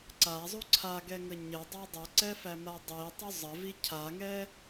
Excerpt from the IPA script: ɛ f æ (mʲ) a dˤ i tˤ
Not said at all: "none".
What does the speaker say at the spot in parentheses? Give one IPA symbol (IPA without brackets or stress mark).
m